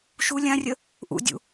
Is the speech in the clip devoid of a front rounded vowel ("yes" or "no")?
yes